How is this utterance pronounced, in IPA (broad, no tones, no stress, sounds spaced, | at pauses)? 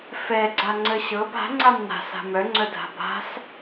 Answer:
f ɛ ɡ͡ǀ a ŋ͡ǀ ə ɕ ɤ b a̤ ŋ͡ǀ a m n a̤ s a̤ m œ ŋ͡ǀ œ dʱ a̤ b a̤ s